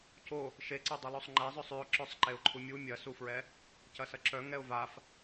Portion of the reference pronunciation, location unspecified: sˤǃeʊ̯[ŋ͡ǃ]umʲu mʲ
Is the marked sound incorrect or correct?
incorrect